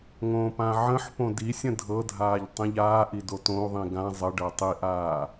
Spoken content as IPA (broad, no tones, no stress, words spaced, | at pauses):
ŋõːpãʕə̃ħpõ disʲə̃ dʱɤdʱaːʎ tˤĩʎaːʔi dotõu̯ðˤĩ ɡã zˤəɖɤ tˤiʔaː